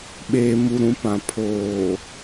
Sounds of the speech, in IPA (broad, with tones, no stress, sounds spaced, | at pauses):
ɓ eː˨ m u˨ ɾ ũ˨˦ p ã˨ pʰ oː˨